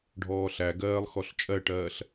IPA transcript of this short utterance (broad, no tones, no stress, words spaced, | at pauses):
ɖʱɔːɬæɡɜːlˠ xɔɬt͡ʃʼɜʈɜːɬ